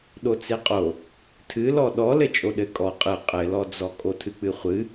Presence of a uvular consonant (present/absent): present